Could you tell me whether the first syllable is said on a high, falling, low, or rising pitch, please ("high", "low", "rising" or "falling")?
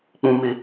high